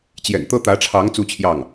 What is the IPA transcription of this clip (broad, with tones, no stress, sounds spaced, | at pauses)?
t͡ɕ j ɛ̰˨˩ n t̪ ɤ˥ t̪ ä˧˥ ʈ͡ʂʰ ɑ˧˥ ŋ t͡s u˥ t͡ɕʰ j ɑ˥˩ ŋ